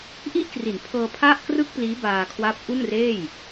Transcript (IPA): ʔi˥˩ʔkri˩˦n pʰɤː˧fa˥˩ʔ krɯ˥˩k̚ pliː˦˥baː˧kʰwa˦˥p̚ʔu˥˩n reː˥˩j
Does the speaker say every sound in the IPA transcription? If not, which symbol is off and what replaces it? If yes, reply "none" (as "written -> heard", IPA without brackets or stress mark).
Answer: f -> pʰ